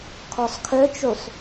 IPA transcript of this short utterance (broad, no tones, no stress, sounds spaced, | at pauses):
kʰ ɔ sˤ kʰ œ t͡ʃ u sˤ